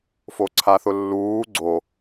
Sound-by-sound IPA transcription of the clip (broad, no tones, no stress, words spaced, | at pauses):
foǀʰaθʊlːuː ɡ͡ǀo